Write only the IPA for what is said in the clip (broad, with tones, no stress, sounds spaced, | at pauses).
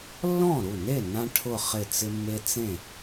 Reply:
lː ɔ̃˥˩ ɾ u˥˩ n e˥˩ n ã˧ ʈʰ ʊ˧˩ χ ɪ˧˩ t͡s ɪ˧ mː e˧ t͡s ẽ˥˩